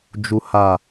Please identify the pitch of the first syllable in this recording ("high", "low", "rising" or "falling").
low